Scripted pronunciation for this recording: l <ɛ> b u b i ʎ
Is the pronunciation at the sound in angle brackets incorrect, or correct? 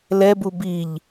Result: correct